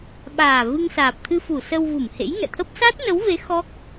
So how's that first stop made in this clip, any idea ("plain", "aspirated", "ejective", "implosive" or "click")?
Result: implosive